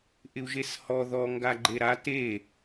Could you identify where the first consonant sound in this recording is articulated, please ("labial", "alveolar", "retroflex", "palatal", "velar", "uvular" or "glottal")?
glottal